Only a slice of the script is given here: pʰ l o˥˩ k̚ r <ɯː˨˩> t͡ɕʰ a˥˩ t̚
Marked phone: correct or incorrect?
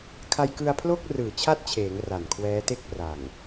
correct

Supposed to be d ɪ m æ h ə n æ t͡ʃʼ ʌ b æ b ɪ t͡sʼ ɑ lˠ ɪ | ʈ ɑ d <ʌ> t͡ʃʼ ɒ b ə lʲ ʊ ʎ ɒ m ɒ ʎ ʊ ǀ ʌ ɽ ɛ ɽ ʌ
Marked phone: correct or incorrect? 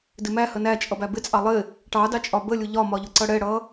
incorrect: ɑ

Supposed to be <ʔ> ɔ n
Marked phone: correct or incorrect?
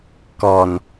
incorrect: k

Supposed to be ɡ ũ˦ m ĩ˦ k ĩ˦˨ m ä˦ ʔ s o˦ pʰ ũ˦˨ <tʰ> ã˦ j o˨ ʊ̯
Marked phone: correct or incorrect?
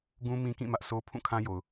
incorrect: kʰ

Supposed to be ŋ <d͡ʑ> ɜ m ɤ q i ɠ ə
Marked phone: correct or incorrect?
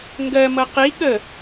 incorrect: ɡ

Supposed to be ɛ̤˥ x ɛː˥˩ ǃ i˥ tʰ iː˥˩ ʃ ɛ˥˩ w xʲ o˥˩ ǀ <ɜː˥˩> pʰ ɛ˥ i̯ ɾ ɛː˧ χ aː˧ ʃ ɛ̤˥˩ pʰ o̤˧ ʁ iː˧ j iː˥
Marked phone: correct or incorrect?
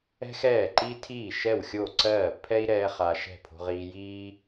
correct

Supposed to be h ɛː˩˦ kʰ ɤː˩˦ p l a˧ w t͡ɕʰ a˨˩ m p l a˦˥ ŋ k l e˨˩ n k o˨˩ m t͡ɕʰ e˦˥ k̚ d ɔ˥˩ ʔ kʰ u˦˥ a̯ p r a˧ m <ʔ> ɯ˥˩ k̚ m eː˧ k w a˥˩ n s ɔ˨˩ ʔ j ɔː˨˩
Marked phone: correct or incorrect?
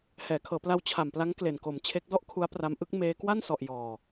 correct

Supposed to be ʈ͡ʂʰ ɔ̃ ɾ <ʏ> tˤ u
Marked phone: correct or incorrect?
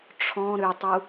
correct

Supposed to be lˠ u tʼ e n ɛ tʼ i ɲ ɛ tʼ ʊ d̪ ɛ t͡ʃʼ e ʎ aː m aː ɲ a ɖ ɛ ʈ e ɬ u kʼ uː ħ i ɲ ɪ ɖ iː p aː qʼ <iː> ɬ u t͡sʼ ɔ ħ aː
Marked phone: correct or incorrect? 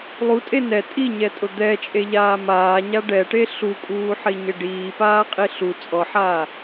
incorrect: i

